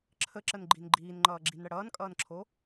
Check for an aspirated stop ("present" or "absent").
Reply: present